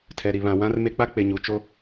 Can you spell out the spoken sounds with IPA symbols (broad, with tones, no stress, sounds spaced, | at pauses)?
tʰ ɛ˨ ɾ i˨ β ã˨ w ã˦ r m e˦ k͡p a˦ k͡p e˨ ɲ u˨ t͡ʃ o˦